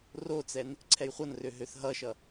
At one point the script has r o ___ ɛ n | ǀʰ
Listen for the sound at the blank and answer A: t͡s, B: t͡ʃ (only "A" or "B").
A